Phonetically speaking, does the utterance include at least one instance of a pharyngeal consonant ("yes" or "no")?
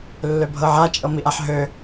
yes